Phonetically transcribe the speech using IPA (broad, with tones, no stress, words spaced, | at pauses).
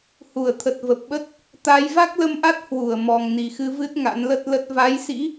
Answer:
hu˧˩ə̯t̪ʰə˨˩t̚ və˨˩p̚ɓə˦˥t̚ | t̪a˨˦j va˦˥k̚lə˧mʔa˦˥t̚ hwu˧˩ə̯ mɔ˨˩ŋni˨˩xɨ˧vɨ˦˥t̚ ŋa̰˧˥nlə˦˥t̚lə˦˥t̚ va˨˦jsḭ˧˥